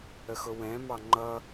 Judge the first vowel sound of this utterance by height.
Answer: mid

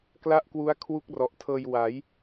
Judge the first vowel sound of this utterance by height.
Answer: low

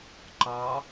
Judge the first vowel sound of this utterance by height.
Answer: low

